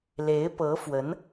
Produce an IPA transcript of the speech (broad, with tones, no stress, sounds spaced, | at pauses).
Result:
l e˧˥ ɪ̯ p ɤ˧˥ f w ə˧˥ n